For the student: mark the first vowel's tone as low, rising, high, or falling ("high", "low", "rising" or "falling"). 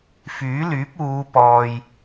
rising